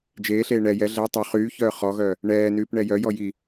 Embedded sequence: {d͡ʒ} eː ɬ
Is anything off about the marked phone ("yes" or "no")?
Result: no